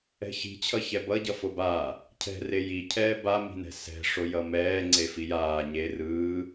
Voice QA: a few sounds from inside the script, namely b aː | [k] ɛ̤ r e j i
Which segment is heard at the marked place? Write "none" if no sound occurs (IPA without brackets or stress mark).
cʰ